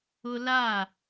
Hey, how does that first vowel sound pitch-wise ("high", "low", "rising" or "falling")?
high